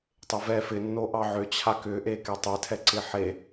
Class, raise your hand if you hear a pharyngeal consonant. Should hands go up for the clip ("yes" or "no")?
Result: yes